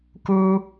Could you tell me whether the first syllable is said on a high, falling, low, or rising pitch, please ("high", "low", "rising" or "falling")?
high